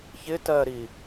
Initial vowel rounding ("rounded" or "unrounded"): unrounded